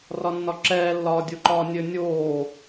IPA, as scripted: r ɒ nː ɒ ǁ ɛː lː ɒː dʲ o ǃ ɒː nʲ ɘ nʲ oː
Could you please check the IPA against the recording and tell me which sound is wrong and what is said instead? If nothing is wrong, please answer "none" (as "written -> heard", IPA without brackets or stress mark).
none